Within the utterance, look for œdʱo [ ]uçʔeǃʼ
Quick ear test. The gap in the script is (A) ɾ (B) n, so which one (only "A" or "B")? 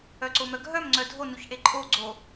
B